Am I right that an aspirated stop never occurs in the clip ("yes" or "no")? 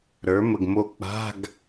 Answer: yes